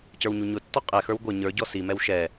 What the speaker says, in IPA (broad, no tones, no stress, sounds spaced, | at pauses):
c ə˞ w ɲ u ɲ ʊ tː ɔ qʼ ɛ x ə˞ w ɡʷ ɛ ɲ ə˞ ɟ ɔ s i m ɛ w ʃ ɛ